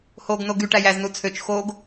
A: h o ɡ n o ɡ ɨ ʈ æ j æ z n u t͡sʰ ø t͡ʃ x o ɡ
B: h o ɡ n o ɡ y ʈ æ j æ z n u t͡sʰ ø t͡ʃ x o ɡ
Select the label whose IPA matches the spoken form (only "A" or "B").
B